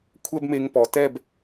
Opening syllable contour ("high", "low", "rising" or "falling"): high